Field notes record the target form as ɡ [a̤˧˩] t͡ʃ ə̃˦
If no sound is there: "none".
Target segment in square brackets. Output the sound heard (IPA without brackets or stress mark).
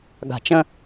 a̤˧˩